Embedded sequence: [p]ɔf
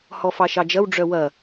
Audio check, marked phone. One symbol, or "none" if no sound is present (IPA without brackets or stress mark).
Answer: h